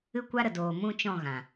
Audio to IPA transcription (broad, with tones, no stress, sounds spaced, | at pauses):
ɨ˦ kʷ a˦ ɾ ə˨ d oː˨ m ũ˦ t͡ʃ ɔ̃˦˨ ɣ ã˨